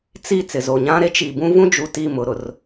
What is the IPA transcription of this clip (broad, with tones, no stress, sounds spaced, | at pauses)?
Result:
t͡s i˦˨ t͡s ɪ˨ z o˨ ɲ ã˦ ɾ e˦ t͡ʃ i˨ b ũ˦ v ũ˦ d͡ʒ u˨ t i˦˨ m ʊ˨ ɾ ʊ˨ r